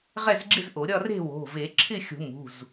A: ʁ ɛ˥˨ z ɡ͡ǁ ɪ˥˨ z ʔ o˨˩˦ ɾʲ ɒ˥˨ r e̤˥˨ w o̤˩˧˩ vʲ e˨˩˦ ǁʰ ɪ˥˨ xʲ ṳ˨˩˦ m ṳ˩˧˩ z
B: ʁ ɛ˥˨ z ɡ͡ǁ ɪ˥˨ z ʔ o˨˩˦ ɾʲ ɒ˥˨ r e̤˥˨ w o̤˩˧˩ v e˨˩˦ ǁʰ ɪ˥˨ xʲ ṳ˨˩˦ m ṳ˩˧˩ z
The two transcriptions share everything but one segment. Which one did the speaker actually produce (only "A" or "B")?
B